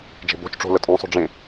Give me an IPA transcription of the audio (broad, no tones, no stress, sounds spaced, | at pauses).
d͡ʒ e̤ b o̤ t͡ʃ ʈ͡ʂ o̤ l ə tʼ õ sˤ o̤ ɖ͡ʐ ẽ